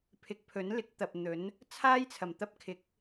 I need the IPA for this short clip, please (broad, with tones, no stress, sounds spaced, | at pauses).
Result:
pʰ ɪ˨˥ k̚ pʰ ɵ˨˥ n l ɪ˨˥ k̚ t̪ ɐ˨ p̚ n̪ ɵ˨˥ n | t͡sʰ aː˥ j t͡sʰ ɐ˨˩ m t̪ ɐ˥ p̚ kʰ ɪ˨˥ k̚